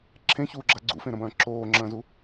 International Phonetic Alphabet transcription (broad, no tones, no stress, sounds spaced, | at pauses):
ǁʰ ẽ ç uː ɡ͡ǁ a ɡ͡ǀ ṵ f ẽ ɾ ɐ̃ b ɐ̃ː ǁʰ oː ŋ͡ǁ ɐ̃ː z u